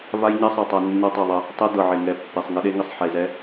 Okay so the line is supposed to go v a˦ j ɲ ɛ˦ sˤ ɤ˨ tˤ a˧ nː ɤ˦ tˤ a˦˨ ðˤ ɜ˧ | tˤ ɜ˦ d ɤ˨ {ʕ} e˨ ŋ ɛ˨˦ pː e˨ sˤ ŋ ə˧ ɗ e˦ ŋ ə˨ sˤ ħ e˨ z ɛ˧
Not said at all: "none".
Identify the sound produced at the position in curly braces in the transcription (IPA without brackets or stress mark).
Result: ʕ